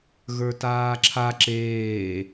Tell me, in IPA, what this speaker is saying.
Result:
ɣ ə˞ t aː ǁʰ a ǁ eː

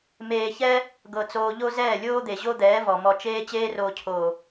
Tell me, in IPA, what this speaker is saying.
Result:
m eː˧ ç ɛ˦ | ɡ ɤ˧ t͡s oː˧ ʎ o˦ z ɛː˦˨ lʲ oː˦ d̪ e˨ ʑ o˦ d̪ ɛː˨˦ v ɔ˨ m ɔ˧ t͡ʃ eː˦ t͡ɕ eː˦ r oː˧ cʰ oː˨

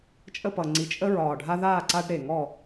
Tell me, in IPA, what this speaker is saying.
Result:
t͡ʃʼ ə˥˨ p ʌ˨˩ ŋ͡ǀ i˨˩ t͡ʃʼ ə˦ ɹ ɒː˨˩ ɖʱ a˦ ð aː˥˨ ǀ a˦ ɖ ɾ e˨˩ ŋ ɔ˥˨

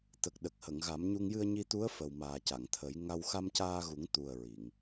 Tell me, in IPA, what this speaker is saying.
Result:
t̪ ə˨˩ k̚ ɗ ə˨˩ k̚ h ə˨˩˨ ŋ ɣ a˨˩˦ m ɲ u˧ ŋ j ɨ˧ ə̯ ɲ i˧ t̪ u˧˥ ə̯ f ə˨˩ w m aː˨˩ c a˨˩˨ ŋ t̪ʰ ə˨˩˦ j ŋ a˧ w x a˧ m c aː˧ ɣ u˨˩˦ ŋ t̪ u˨˩ ə̯ ɹ i˨˩˨ ŋ

